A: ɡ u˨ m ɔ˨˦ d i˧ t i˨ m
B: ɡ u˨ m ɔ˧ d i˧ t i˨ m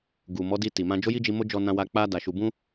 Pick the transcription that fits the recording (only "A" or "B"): A